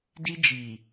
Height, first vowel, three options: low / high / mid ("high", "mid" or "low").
high